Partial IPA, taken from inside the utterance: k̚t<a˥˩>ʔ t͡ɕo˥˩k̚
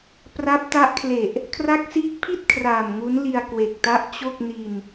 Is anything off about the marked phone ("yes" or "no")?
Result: yes